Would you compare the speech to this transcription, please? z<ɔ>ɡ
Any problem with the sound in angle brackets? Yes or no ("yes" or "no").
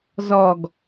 no